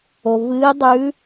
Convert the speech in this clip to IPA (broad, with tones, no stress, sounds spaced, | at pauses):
o˩ v ɨː˧˥ dˤ ʉ˧˥